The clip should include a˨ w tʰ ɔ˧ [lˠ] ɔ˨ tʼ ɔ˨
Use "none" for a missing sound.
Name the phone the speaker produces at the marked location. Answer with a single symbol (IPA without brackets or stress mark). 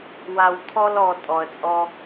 l